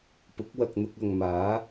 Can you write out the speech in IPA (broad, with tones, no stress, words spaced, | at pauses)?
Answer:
pʊ˨˥k̚wɐ˨k̚n̪ʊ˧k̚ ɐ˨ŋmaː˨˥